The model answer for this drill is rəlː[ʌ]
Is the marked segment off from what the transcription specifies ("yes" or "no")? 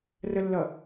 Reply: no